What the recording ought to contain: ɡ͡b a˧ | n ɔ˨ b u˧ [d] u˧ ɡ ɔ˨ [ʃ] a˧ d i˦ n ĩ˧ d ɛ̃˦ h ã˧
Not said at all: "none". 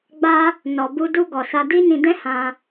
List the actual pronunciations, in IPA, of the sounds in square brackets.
d, s

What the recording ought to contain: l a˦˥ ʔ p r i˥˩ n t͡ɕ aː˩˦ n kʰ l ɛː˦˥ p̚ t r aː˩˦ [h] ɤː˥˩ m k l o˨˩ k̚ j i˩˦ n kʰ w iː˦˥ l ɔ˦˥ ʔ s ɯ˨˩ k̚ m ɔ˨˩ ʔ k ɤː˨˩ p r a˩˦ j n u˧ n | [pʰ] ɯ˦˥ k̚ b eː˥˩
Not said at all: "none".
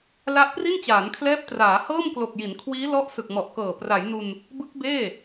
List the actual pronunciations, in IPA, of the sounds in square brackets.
h, b

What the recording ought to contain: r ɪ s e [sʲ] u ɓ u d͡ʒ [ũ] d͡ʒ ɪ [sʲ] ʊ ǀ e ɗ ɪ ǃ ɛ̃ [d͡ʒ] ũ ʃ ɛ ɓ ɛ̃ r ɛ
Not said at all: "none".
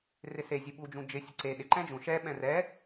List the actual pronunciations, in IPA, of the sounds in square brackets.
zʲ, ũ, sʲ, d͡ʒ

